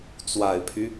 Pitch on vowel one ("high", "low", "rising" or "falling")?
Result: low